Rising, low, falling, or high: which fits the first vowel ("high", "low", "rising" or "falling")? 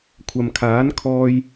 low